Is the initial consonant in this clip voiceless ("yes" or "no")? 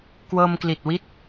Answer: yes